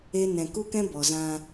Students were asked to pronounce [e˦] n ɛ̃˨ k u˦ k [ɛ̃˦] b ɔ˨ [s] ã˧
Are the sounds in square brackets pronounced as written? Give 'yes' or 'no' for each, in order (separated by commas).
yes, yes, no